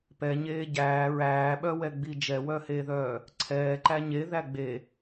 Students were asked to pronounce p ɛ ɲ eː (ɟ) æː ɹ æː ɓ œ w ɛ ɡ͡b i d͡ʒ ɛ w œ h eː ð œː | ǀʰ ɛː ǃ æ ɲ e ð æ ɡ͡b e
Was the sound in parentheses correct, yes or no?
yes